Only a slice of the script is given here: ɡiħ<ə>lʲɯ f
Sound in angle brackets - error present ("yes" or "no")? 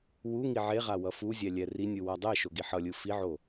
yes